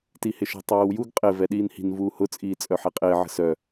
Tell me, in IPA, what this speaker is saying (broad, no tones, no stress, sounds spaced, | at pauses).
t i h ɪ ʃ ə̤ tˤ eː w j u ɡ qʼ ɪ v ɛ ɗ iː n h i̤ n v uː h ʊ t͡sʼ iː t͡sʼ œ ħ e qʼ ɪː ʕ ə̤ s œ